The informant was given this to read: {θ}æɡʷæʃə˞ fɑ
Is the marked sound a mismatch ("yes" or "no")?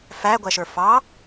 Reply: yes